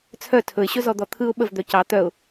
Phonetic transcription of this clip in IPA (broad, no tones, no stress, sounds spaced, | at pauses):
t͡sʰ œ tʰ ɵ ɪ̯ ɕ ɵ z ɔ d̪ ɔ t̪ʰ ɯ ʊ̯ ɓ ə v d̪ œ c ɑ t̪ œ ʊ̯